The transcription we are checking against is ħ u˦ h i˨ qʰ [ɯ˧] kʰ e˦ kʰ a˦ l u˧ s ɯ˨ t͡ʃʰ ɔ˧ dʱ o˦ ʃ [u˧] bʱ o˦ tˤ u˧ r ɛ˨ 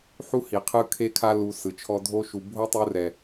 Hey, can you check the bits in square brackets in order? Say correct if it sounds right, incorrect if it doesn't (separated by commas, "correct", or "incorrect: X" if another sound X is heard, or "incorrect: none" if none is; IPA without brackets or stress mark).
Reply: correct, incorrect: u˨